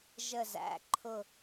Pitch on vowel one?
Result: falling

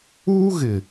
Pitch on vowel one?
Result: high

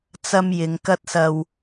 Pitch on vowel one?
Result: high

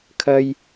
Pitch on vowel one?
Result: high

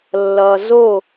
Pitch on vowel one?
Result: low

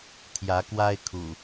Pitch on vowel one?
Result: rising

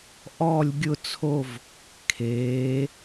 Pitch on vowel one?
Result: falling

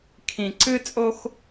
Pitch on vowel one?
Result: low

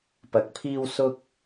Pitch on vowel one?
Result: low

